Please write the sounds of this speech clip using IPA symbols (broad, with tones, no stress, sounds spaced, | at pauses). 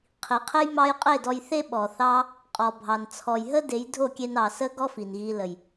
qʰ i˨ qʰ e˦ j m ɑ˦ j qʼ e˦˨ d ɔ˧ j θ e˦ ɓ ɔ˨ θ ɑ˦ | qʼ ɔ˨ bʱ ɑ˨ n t͡sʰ ɔ˨ j ɦ ə˦ d e˨˦ j dʱ o˦˨ kʲ e˧ n ɑ˨ s ə˦ ɡ ɔ˦ f i˨ n ɣ i˧ l ə˨ j